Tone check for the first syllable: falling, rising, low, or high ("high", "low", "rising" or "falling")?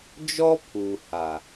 high